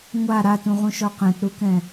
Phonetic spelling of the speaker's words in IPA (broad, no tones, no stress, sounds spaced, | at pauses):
ŋʷ a ɾ a t ũ ʁ ũ ʃ ɔ q ɛ̃ t ɾ u k ɛ̃